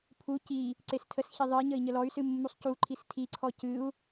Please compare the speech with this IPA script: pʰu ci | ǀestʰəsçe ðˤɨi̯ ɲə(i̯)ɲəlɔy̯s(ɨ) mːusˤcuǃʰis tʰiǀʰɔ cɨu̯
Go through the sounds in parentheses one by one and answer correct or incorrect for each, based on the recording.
correct, correct

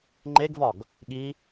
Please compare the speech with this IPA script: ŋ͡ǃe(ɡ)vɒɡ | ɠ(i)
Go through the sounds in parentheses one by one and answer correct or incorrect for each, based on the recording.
correct, correct

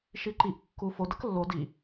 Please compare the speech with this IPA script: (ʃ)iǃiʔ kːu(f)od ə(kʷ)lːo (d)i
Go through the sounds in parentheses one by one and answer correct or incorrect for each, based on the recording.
correct, correct, incorrect: k, correct

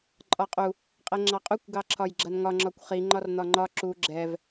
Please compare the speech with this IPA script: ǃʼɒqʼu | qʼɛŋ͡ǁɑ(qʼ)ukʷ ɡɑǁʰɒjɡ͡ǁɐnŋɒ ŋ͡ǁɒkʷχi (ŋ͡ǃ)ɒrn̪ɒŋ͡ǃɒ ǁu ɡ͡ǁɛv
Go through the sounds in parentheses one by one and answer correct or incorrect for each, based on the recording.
correct, correct

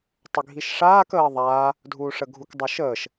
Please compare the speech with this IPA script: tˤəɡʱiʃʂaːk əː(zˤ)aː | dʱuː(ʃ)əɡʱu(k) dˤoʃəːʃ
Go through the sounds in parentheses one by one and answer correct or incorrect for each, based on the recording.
incorrect: ðˤ, incorrect: ʂ, correct

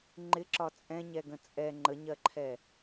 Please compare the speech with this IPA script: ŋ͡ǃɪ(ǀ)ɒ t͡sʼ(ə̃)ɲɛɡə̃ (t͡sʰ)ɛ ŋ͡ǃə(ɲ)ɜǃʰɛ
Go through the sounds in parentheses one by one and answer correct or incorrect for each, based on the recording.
incorrect: ǁ, incorrect: ɛ̃, incorrect: t͡sʼ, correct

